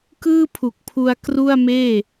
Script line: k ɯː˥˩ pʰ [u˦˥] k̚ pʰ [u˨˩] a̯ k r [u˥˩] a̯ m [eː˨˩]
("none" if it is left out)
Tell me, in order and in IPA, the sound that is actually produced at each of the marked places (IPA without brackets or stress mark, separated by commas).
u˨˩, u˧, u˥˩, eː˥˩